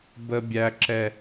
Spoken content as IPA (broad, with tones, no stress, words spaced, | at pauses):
bə˦bʲæ˦ǁɛ˦